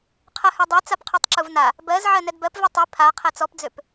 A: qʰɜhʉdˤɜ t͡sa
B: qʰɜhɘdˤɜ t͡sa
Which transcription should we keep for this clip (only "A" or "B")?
A